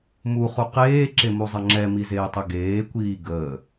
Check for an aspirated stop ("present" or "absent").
absent